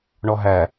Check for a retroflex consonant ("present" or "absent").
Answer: present